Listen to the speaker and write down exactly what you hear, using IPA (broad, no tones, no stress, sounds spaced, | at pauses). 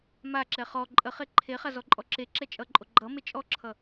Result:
m a ǁ ɛ χ ɔ ǃʼ ə χ e ǃʰ e χ a z ɔ ǃʼ ɔ ǁ e ǁ ɛ t͡ʃʼ ʌ ǃʼ o ɡ͡ǃ ʌ m e t͡ʃʼ ɔ ǁʰ ʌ